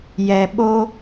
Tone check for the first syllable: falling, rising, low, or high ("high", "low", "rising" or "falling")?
low